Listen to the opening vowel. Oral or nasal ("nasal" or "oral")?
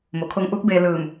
oral